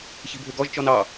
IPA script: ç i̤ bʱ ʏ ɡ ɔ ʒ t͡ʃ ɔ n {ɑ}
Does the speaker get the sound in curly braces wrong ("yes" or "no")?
no